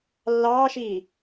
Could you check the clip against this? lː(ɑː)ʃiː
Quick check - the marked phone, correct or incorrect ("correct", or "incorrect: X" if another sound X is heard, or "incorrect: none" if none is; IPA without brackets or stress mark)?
correct